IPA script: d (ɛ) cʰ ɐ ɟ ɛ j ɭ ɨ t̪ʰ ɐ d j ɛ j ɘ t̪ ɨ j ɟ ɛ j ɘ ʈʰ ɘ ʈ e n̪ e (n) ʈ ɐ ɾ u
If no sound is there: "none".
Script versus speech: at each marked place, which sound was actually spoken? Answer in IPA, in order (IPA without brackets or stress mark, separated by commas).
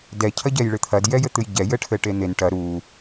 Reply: ɛ, n